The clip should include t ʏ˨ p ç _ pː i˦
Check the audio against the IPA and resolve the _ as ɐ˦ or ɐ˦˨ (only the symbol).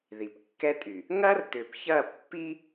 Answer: ɐ˦˨